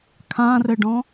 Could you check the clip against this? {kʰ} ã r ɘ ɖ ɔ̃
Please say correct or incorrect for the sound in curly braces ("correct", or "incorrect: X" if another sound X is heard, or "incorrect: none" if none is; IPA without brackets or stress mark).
correct